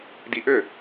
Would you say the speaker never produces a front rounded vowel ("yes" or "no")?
no